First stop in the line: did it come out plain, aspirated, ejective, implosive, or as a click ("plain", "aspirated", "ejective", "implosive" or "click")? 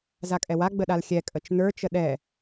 ejective